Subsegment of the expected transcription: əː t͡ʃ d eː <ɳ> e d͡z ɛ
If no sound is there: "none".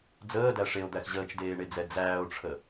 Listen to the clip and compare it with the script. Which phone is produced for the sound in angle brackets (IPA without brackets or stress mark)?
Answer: ɳ